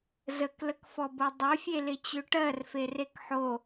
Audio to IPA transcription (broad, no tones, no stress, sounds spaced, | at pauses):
z ə k l ə k f ɔ b o dˤ ø fʲ e l ɪ t͡ɕ ø ʈ ɜ r f e r e k ħ o